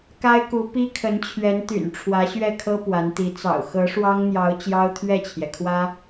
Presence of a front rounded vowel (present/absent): present